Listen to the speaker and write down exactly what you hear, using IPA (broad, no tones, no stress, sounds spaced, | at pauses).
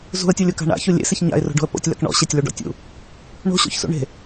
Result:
z ṳ ə̯ tʲ o lʲ o k a̤ ɳ a̰ ç u lʲ ḛ s ɪ ç ɲ a̰ ɪ̯ r o̤ ɖ o̤ ə̯ p o̰ tʲ l a̰ k ɳ ɔ̰ ɕ e tʲ l u ɖ ɔ̰ tʲ ṵ | ɳ o̤ ɕ o̰ ç s ṵ ɳ e̤